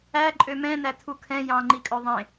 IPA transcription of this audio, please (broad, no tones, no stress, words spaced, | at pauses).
æ ǃʼømɛ̃næ tʰukʰɛ̃ jɑ̃ŋ͡ǃikʼœ ðˤẽ